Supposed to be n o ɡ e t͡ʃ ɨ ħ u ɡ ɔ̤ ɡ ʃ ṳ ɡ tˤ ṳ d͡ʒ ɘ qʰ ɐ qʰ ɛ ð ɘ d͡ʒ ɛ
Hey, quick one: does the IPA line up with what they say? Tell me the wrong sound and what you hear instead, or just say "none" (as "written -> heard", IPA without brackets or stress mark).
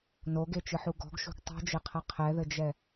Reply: none